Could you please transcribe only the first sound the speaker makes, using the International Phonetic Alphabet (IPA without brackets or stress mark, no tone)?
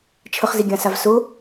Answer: t͡ʃʰ